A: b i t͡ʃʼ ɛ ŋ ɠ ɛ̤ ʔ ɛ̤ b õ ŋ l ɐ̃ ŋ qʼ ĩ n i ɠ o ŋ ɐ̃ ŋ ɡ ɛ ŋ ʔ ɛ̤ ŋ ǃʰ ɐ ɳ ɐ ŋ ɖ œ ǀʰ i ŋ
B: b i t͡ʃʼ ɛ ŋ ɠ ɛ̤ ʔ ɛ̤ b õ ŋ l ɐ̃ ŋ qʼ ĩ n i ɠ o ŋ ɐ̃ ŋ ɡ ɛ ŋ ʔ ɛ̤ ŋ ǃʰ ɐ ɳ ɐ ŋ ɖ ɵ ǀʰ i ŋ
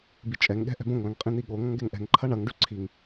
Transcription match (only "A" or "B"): B